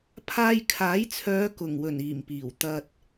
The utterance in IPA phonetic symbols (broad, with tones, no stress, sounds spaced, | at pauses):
pʰ aː˧ j kʰ aː˨˥ j t͡sʰ œː˨˧ k ʊ˨˩ ŋ w ɵ˨˩ n iː˨˩ m p iː˨˩ w t̪ ɐ˨ t̚